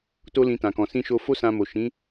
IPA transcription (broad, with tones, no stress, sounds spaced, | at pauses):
t o˦ l ĩ˧ t ã˨ k ɔ̃˨ s ĩ˧ ʃ o˧ f o˦ s ã˧ m o˨ ʃ ĩ˨˦